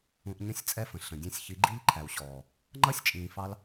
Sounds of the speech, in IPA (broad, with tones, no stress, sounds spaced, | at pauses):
ũ˧ ʔ ɲ ə̃˦˨ sʲ t͡sʼ ɛ˦ f ə̃˨ ɬ ə̃˨ dʲ ɛ̃˦˨ sʲ ç i˨˦ ɡ͡ǃ i˦ ʎ ǃʰ æ˨ w ɕ ɔː˨ | ŋ͡ǃ ʌ˦ sʲ t͡ʃʼ ĩː˧ f ɑ˦ l